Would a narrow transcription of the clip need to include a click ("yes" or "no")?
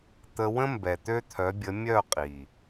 no